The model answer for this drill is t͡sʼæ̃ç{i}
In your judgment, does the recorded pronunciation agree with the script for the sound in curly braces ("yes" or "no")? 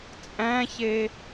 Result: no